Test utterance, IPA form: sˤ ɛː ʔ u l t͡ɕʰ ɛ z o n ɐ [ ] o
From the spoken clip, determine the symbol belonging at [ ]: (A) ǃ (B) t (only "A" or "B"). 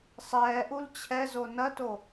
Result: B